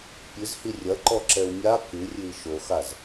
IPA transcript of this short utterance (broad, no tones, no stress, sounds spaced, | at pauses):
pʲ ɨ z h i rʲ ɐ ǃ ɔ ǁ ɛ u̯ mʲ a k ɨ rʲ ɨ i̯ ʃ o x a z